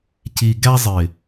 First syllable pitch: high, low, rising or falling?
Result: low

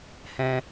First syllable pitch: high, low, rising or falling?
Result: high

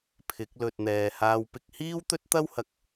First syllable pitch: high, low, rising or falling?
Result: rising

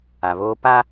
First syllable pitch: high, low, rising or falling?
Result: low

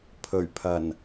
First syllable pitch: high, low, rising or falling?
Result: low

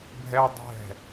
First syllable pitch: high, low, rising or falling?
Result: high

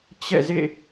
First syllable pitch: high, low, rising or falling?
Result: falling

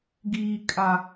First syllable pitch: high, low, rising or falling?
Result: low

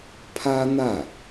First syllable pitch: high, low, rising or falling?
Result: high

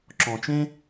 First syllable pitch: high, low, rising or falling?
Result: low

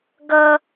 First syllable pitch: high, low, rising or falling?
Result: high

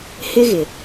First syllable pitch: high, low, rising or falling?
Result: high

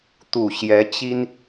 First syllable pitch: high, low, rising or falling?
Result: low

